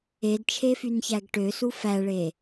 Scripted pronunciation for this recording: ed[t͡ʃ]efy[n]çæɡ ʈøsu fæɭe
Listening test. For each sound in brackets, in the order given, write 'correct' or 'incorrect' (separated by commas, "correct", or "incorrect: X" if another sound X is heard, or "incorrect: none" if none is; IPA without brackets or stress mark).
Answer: incorrect: t͡ʃʰ, correct